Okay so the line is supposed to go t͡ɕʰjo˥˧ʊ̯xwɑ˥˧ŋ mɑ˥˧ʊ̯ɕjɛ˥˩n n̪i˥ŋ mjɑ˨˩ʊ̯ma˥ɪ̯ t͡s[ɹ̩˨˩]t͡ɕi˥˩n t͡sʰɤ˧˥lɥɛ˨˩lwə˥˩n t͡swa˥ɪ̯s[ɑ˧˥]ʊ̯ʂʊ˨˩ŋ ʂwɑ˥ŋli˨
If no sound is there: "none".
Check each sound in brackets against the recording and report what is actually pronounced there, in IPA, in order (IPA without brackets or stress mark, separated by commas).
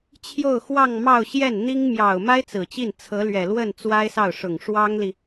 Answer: ɹ̩˨˩, ɑ˥˩